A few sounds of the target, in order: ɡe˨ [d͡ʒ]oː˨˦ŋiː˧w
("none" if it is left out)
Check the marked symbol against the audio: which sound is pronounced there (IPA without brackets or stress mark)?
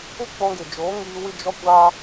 d͡ʒ